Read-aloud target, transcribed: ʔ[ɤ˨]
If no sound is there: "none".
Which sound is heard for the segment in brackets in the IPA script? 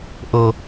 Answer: ɤ˨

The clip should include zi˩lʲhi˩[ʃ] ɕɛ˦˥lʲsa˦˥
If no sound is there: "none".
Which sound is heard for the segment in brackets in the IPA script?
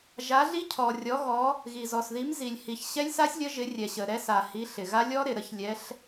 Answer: ç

